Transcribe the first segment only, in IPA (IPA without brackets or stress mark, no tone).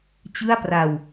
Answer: t͡ɕ